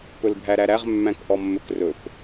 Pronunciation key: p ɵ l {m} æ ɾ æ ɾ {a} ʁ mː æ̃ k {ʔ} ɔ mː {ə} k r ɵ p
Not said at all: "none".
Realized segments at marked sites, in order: bʱ, æ, ʔ, ɵ

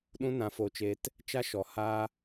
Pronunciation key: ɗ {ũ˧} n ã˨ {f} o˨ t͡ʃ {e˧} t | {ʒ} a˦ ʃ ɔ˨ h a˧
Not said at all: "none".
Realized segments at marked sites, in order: ũ˧, f, e˨, t͡ʃ

